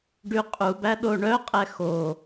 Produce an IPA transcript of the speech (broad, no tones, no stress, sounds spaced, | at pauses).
ɖ y qʼ u b æ ɗ o ɳ œ qʼ ɛ x o